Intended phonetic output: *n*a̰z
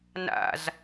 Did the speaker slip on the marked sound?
no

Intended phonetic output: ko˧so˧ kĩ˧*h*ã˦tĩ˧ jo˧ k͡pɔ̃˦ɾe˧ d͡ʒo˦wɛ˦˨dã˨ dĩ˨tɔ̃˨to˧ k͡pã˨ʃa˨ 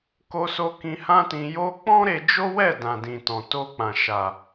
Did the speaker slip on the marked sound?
no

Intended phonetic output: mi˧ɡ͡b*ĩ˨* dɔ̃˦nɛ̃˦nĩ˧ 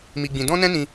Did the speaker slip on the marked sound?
yes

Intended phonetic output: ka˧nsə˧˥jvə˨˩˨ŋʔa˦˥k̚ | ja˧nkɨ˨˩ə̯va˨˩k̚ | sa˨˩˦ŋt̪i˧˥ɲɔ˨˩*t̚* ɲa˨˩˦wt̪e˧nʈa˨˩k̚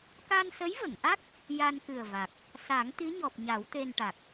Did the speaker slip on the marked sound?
yes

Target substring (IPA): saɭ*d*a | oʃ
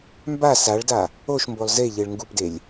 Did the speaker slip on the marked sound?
no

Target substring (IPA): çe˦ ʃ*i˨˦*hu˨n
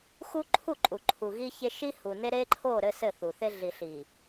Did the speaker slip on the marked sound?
yes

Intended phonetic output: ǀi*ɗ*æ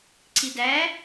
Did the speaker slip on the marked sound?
yes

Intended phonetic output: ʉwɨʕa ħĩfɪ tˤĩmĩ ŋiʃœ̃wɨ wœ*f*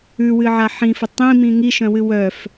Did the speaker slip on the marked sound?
no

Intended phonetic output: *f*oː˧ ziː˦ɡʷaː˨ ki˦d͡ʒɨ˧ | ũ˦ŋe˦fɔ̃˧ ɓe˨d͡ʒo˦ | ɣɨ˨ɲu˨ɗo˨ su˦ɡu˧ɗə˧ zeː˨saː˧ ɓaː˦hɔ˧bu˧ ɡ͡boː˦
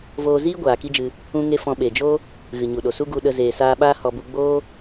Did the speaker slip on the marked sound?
yes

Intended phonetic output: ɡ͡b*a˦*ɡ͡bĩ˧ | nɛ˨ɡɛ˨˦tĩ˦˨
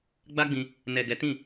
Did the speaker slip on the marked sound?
no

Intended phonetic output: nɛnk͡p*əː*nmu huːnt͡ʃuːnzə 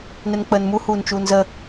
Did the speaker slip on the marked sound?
no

